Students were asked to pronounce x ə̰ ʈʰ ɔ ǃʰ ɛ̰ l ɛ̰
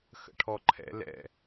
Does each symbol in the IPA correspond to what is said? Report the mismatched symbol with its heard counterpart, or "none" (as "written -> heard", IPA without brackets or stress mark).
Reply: none